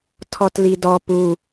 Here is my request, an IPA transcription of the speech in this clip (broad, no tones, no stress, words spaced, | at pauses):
tʰɔtlidɔ pu